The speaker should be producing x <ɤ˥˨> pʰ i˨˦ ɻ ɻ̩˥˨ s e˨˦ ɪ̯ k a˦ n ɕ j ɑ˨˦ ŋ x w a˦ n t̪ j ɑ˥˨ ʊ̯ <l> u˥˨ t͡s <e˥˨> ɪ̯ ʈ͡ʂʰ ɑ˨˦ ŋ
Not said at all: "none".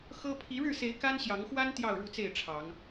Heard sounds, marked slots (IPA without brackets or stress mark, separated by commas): ɤ˦, ɻ, e˥˨